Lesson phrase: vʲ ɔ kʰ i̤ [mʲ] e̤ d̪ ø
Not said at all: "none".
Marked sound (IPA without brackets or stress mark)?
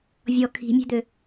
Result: mʲ